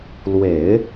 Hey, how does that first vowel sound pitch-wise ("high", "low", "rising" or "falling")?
low